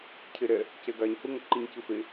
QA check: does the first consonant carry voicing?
no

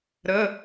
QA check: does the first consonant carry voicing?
yes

